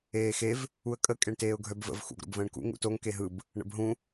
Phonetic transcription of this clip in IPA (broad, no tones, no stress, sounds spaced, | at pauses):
eː x e v | u ə̯ kʼ ə kʼ e ɳ t eː ʊ̯ ɡʱ œ b v ə̰ v x ṵ ɡ ɾ o̰ b v ə̃ː ɳ k ṵ ŋ ṵ t o ŋ k e ɦ ɯ b | ɳ ə̰ b ɦ ũ